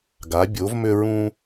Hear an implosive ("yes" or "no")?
no